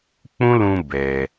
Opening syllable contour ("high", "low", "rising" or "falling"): high